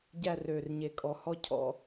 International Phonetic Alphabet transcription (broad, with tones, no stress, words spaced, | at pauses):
ɟæ˦˨rø˨˩rɲe˨˩kʼɔ˨˩ hɔ˦˨ cʰɔ̰˧˩˧